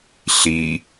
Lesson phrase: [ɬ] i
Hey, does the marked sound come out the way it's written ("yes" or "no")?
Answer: yes